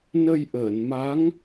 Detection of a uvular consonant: absent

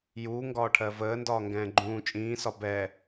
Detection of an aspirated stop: present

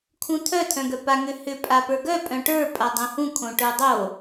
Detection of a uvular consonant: absent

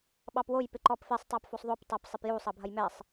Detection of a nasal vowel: absent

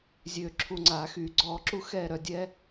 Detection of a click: present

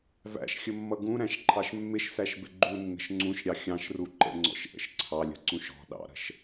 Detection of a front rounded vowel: absent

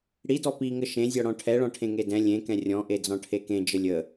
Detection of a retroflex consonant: present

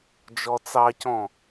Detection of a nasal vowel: present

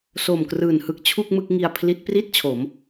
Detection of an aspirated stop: present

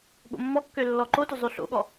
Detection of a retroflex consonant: absent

